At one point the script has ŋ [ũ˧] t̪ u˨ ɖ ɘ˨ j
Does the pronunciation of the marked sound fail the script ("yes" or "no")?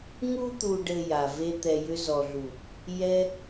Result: yes